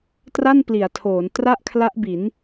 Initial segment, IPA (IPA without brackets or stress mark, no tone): t